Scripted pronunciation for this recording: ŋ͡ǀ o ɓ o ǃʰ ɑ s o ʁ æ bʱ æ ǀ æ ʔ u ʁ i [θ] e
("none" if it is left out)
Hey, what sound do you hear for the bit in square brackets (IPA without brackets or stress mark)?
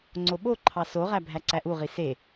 s